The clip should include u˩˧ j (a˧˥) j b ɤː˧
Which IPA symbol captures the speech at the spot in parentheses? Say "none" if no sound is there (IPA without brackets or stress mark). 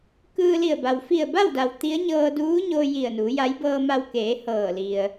a˧˥